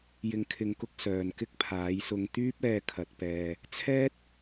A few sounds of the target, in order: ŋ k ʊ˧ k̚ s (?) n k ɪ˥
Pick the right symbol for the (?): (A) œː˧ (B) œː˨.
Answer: B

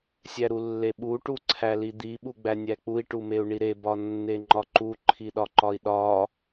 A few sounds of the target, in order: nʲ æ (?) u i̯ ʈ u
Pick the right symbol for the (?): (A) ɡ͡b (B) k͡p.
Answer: B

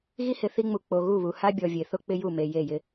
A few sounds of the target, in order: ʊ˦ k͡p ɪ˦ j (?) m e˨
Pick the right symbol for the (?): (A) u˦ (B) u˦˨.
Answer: B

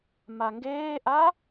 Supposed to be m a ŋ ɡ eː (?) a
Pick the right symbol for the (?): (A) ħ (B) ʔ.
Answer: B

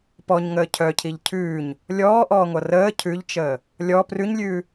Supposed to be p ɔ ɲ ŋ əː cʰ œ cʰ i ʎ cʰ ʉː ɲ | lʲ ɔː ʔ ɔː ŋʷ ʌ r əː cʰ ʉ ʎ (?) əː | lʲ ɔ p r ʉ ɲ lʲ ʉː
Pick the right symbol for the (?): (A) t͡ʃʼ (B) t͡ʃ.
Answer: B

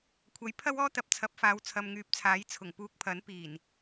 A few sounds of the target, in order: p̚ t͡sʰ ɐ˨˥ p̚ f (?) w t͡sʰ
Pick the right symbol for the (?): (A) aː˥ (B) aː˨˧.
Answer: B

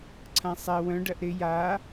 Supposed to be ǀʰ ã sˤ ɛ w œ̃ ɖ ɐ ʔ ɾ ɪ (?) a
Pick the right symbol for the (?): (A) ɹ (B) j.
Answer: B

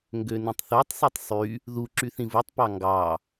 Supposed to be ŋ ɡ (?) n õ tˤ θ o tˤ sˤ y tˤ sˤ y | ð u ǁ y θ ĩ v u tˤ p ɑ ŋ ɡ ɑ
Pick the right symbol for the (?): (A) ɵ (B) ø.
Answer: B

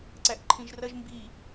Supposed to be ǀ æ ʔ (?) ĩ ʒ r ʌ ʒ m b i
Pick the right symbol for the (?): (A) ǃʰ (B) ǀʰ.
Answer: A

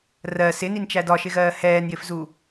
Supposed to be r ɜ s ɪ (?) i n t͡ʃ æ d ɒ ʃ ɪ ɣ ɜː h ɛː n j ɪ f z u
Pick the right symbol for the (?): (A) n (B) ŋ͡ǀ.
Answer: A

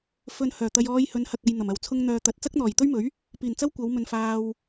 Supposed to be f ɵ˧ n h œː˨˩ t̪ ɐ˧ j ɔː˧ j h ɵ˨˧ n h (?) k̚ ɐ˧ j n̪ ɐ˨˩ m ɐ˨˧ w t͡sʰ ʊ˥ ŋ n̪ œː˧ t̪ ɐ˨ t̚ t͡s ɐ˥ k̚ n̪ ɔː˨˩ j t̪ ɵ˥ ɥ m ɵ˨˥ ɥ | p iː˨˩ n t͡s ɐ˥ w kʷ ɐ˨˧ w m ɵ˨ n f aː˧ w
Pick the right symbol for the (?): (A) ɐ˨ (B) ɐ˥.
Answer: A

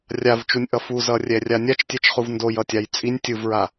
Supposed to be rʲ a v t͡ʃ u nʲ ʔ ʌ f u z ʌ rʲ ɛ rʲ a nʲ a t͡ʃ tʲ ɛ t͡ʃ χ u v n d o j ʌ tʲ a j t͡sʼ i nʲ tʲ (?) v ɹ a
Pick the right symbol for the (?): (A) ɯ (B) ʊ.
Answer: A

